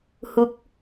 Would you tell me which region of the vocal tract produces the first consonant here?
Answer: throat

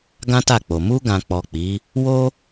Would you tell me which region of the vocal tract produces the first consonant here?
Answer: velum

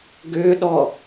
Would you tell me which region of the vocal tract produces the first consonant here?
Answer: velum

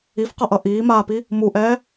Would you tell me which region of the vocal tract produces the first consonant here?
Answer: lips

